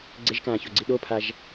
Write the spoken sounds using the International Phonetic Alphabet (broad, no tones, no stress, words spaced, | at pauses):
ɡ͡ǀeʒkãːçoɡ͡ǀi ɗopʰaʒ